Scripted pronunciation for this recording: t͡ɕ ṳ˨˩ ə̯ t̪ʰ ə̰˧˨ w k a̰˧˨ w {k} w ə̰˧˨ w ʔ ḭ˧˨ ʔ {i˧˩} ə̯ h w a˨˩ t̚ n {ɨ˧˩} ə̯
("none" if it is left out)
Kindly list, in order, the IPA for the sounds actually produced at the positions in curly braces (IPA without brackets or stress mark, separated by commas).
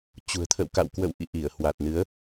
k, i˧˩, ɨ˨˦